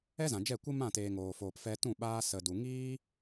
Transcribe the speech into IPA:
ɛ˦ z ã˨ d͡ʒ ɛ˦˨ kʷ ɨ˦ m ã˦˨ t eː˨ ŋ oː˨ f oː˨ p f ɛ˧ t ũ˦˨ ɓ aː˧ s ə˨ d u˨ ŋ iː˦

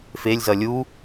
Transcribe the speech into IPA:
f e lʲ z ʌ lʲ u

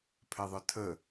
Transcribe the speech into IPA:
pʰ ɛ ðˤ œ tʰ ə

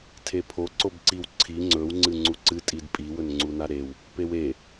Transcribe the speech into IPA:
tʰ e pʰ o ǀ o b ǀ i w ǀʰ i ŋ͡ǀ ɵ w ŋ͡ǀ ɨ ŋ͡ǀ u ǀ ɨ tʼ i d pʼ i w ɵ n ŋ͡ǀ u n a ɾ e w | p e w e

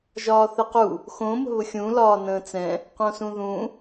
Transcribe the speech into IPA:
ʒ ɒː θ ɛ q u | x õ m ə̤ β ʊ xʲ ũː l ɒː n ə̃ː t͡s ɛ̃ | q õ s ũ ð ũ

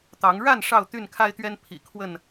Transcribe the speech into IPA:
t̪ ɑ˨˦ ŋ ɻ a˥˨ n ʂ ɑ˥˨ ʊ̯ t̪ y˥˨ n kʰ a˦ ɪ̯ t̪ ɥ ɛ˦ n pʰ ḭ˨˩ kʰ w ə˥˨ n

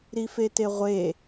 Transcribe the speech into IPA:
ɾ i f e t e ʁʷ e

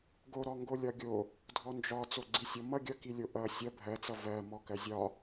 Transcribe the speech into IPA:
ɡ o ɾ ɔ ŋ ɡ o lʲ ɒ ɡʲ o | dʱ ɔ n d͡ʒ ɒ t͡s o ɡ͡ǀ i sʲ ɔ m ʌ ɡʲ ʌ k i lʲ o ʔ ʌ sʲ ʌ bʱ ɜ t͡s ʌ v ɜ m ɔ k ɜ zʲ ɒ

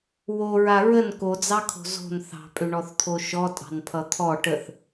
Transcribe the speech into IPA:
w o ɹ a ɹ ə n k o d͡z ɑ kʰ o̤ z o̤ n θ ɑ̤ pʼ ʏ ɳ ɔ θ t̪ʰ o ʃ ɔ tʼ ɑ̤ n pʰ ʌ t̪ʰ ɔ ʈ ə θ

